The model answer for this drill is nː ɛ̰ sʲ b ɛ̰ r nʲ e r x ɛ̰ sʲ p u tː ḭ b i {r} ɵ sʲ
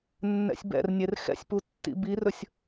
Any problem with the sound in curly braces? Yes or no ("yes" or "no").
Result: no